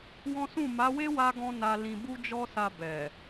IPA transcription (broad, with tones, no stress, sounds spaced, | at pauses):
w ɔ̃˦ s ũ˦˨ m a˨˦ w e˦ w a˧ ɡ ɔ̃˧ n a˧ l ĩ˧ b u˦ d͡ʒ ɔ˦ s a˧ b ɛ˨